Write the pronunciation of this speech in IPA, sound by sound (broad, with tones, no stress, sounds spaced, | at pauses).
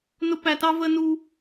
n ʊ˥ p æ˦ t ɑ˥ v ə˦ n u˦